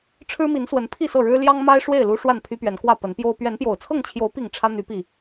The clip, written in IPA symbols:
ʈ͡ʂʰ ɻ̩˦ m i˨˦ n s w ə˨˦ n pʰ i˥˨ s ɤ˥˨ ɻ ɻ̩˦ l j ɑ˦ ŋ m a˦ ɪ̯ ʂ w e˥˨ ɪ̯ l u˦ ʂ w a˥˨ n pʰ y˦ p ɥ ɛ˨˦ n k w ä˥˨ p ə˨˦ n p j o˦ ʊ̯ p ɥ ɛ˨˦ n p j o˨˩ ʊ̯ t͡sʰ ɤ˥˨ ŋ t͡ɕʰ j o˨˦ ʊ̯ p i˥˨ ŋ ʈ͡ʂʰ ä˦ n̪ y˨˦ p i˨˩

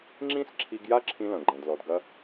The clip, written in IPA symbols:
ŋ͡ǁ ĩ˥ s ǁʰ i˧ ɡ j a˥ ǁʰ ĩ˧ l ɐ̃˩ ɡ͡ǃ ɛ̃˩ d l ɔ˩ d ɡ ɐ˧

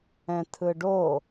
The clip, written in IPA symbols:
ɛ̃ tʰ ɯ ɖ o

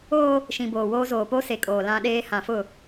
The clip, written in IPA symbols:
oː˦ | ʃ ĩ˨ b oː˨ w oː˦ z oː˨ p o˦ s e˨ kʼ oː˨ l ã˦ ɗ eː˦ h ã˨ f ʊ˦˨

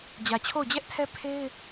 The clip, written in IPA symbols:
d͡ʑ ä˨ t͡ɕʰ o˦˨ ʊ̯ d͡ʑ ɛ˦ ʔ tʰ ɛ˦ pʰ e˦ ɪ̯

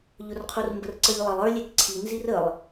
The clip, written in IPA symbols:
ʎ ʊ r qʰ u r m b ə r ǀ ə ʎ lˠ ə lˠ ə˞ lʲ ɛ k ǀʰ i n z i r ə lˠ

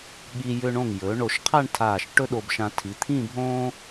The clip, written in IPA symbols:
ɠ i˧ j ʏ˧ ɳ õ˧˩ ŋ j ɵː˩˧ ɳ o˧˩ ʃ qʰ a˥˧ ɳ tʰ aː˧˩ ʃ ʈ ɵ˥ ɗ o˧ b ʃ ã˧ tʰ i˩˧ t̪ʰ ĩ˥˧ bʱ õː˥

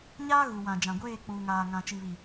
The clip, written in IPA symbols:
ɲ aː˦ ɣ u˨ w ã˨ d͡ʒ ã˨ ɡʷ eː˦˨ k͡p uː˨ ŋ aː˨ ŋ ã˨ t͡ʃ i˨ β i˨

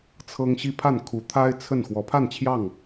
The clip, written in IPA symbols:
t͡sʰ ɤ˦ ŋ ɕ i˦ pʰ a˥˨ n kʰ u˨˦ t̪ʰ a˦ ɪ̯ t͡sʰ ə˥˨ n x w ɔ˨˦ pʰ a˥˨ n t͡ɕʰ j ɑ˥˨ ŋ

